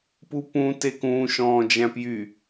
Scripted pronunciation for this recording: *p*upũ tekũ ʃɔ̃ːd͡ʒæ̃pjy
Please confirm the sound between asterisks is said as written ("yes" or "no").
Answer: yes